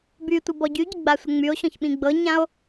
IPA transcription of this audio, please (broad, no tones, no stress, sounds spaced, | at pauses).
b y tʷ ɤ b ɔ ɟ y ɟ ɪ ɡ͡b a sʷ ə ŋ͡m y o̯ ɕ ɔ̃ ç ɓ ĩ ɡ͡b ɤ ɲ ã o̯